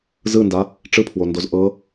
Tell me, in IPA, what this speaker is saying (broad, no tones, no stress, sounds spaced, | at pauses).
z ɯ n d a | ʈ͡ʂ ɯ pʰ w o n d o z ʔ ɤ